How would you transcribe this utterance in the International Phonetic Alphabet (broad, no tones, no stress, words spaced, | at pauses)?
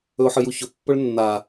ɵʊ̯ħɨjuçɵ pːɵɭnːa